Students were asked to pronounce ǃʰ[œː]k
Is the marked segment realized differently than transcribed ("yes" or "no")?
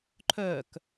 no